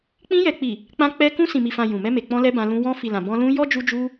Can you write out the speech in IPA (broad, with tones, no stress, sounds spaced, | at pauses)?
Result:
k͡p ĩ˧ j ɛ˨ k͡p i˨ | k͡p ã˧ k͡p ɛ˧ k ũ˧ s ĩ˨ m i˨ f ã˨ j ũ˨ m ɛ˧ m e˨ k͡p ɔ̃˧ l ɛ˧ b ã˧ l ũ˧ w ɔ̃˧ f i˨ l ã˨ b ɔ̃˧ l ũ˧ j ɔ˦ d͡ʒ u˧ d͡ʒ u˧